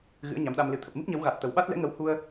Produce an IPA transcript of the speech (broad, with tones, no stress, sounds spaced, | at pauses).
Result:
ɣ ɨ̰˧˥ ə̯ ɲ a˨˦ m ɗ a˧ m l ɨ˨˩ t̪ʰ ə˨˩ p̚ m ɨ˦˥ p̚ ɲ ə˨˦ w ɣ a˨˩ t̚ t̪ ə˨˩ w ɓ a˦˥ t̚ l ɛ̰˧˥ ŋ ə˨˦ w h u˧ ə̯